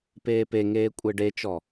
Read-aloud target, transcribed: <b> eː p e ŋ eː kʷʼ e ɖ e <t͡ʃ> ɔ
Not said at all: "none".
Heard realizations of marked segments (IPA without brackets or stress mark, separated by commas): p, t͡ʃ